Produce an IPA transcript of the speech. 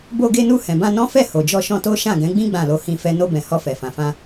bo˧ɡe˧nu˧ hɛ̃˨bã˧ nɔ̃˦fɛ˦˨ ho˨ d͡ʒɔ˧ʃɔ̃˧to˦ ʃã˦˨ɡɛ̃˨˦ɡ͡bĩ˦ ɡ͡bã˦˨lo˧ hĩ˦fɛ˦ no˧bɛ̃˨ hɔ˧fɛ˨fã˨fã˧

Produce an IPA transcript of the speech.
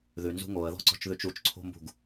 ðʉnzṳ ŋoə̯ðɔ̤ǀɔ̤t͡ʃðʉt͡ʃ ut͡ʃǀʰo̤mbṳɡ

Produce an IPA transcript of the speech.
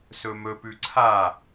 sɵmɵ pʉǀʰa

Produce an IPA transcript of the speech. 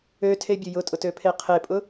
øtʰebʲʊ jʊtʼʊtøpʰe qʰepʼʊ

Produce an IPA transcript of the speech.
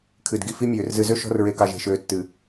kʰɨ˨d ɡi˨fi˦mʲøː˨r zɨ˨zø˦ ʃɔ̤˦r ɹe˨kɑ˨ʒe̤˨ʃøː˨ tːɨ˨

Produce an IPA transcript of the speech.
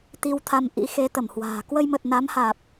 t̪i˧wt̪ʰa˧m ʔḭ˧˥xe˨˦t̪ə˧˩mhwa̤ː˨˩ kwə˧jmə˨˩t̚ na˨˦mhaː˨˩p̚

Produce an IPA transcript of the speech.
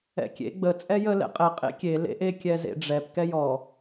ɛ̰kʲḛ ɡ͡bə t͡sʼɛjə lɛ̰qʼɛ qʼḛkʲe lḛʔe kʲɛzḛɖ͡ʐɛp kɛjɔ

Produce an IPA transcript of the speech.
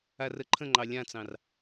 arəǃʰə̃ŋ͡ǃɑ lʲãt͡sɑ̃r

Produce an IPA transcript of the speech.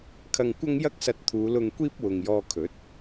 kʰɐ˧ŋkʷɐ˥ŋ jɐ˥k̚sɐ˧t̚ t̪ʰuː˨˧lʊ˧ŋkʷiː˥p̚ wʊ˨ŋjɔː˧kʰɵ˨˥t̚

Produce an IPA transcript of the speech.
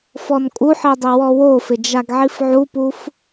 fɔnkʼuħi dˤiwɔwofɪ d͡ʒaɡʕifʕupuf

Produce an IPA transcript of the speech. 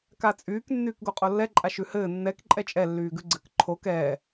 kat͡sʼyːk nːyːkɡoqʼolːɛ ǃʼaʃʉhɘː nːɛk ǃʼɛt͡ʃʼɛ lːyːɡʉɡ͡ǀɘk ǃʰok ɛː

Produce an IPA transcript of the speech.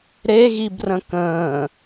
ɾe ɣibrə̃kə̃ː

